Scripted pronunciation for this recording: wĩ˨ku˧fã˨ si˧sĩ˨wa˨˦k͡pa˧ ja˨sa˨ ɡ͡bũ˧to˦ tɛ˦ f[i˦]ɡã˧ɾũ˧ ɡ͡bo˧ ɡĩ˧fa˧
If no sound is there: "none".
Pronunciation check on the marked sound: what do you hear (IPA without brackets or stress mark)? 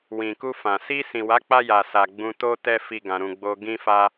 i˦